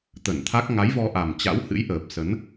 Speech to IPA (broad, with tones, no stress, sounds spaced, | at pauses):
t̪ ə˧˩ n t̪ʰ a˦˥ k̚ ŋ a˨˦ j v ɔ˧ ʔ a˨˩ m t͡ɕ a̰˧˥ w h ɨ̰˧˥ j ʔ əː˨˩ p̚ s ə˨˦ n